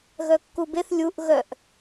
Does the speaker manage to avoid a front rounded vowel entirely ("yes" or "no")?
no